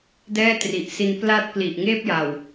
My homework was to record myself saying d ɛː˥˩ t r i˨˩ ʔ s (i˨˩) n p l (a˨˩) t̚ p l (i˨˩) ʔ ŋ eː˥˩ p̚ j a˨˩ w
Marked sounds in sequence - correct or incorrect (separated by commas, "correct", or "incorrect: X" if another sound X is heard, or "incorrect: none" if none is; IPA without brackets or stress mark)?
incorrect: i˧, incorrect: a˦˥, correct